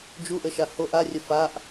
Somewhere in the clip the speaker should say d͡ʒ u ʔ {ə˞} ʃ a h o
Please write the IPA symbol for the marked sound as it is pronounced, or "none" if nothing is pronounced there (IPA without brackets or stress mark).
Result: ə